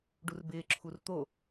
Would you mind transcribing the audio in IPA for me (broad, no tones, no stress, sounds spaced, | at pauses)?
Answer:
ɖ u r b ɪː ǁʰ u r t̪ o